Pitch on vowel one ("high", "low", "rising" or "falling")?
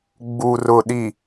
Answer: low